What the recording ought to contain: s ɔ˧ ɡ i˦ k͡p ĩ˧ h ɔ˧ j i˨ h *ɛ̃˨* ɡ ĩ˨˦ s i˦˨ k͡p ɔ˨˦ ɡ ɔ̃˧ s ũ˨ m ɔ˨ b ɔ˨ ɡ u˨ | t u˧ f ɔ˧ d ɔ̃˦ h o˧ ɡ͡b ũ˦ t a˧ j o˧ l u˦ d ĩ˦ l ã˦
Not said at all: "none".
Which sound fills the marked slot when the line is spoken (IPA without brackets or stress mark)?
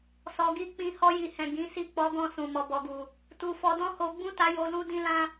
ɛ̃˨